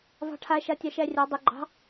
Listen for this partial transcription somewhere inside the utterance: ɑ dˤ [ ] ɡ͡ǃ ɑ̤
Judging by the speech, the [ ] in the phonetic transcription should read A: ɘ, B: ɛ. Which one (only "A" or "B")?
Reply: A